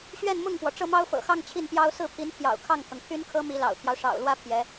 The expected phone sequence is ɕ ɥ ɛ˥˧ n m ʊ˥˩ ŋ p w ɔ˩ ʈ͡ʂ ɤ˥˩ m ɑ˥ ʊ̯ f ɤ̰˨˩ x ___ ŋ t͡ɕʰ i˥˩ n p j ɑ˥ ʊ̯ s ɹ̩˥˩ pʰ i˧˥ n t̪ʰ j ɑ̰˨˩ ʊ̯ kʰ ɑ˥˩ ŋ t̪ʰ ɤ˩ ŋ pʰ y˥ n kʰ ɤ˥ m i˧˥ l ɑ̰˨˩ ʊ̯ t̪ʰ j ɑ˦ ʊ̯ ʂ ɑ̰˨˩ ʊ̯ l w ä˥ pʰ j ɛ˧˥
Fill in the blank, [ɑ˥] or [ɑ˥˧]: ɑ˥˧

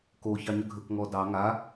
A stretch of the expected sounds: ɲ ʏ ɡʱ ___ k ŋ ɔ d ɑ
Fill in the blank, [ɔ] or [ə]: ə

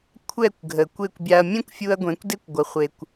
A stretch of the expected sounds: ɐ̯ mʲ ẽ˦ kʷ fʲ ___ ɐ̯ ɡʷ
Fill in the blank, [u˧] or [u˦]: u˧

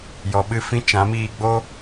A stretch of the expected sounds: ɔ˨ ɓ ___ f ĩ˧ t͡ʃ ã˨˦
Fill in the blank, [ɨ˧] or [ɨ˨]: ɨ˧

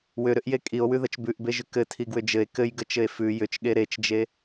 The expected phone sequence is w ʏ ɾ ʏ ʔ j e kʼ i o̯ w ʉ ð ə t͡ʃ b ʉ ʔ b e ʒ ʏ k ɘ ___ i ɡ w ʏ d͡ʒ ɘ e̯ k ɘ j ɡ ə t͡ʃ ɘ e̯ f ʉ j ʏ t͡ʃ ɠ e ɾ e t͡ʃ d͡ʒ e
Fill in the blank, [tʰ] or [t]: tʰ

